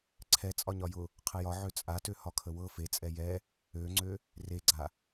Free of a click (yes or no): no